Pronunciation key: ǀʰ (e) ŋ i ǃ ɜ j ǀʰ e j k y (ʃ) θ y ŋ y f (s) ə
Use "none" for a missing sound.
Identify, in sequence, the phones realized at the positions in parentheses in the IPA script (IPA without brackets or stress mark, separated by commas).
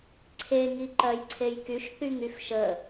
e, ʃ, ʃ